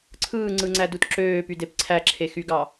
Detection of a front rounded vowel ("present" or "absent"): present